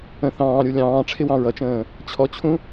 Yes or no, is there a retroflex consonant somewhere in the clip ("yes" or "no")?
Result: yes